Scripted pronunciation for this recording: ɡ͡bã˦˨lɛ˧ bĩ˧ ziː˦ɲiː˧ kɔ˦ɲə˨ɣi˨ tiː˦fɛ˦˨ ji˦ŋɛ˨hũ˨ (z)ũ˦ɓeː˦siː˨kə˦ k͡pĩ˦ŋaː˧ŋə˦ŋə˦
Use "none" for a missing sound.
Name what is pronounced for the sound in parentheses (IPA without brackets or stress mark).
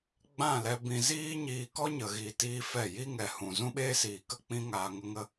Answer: z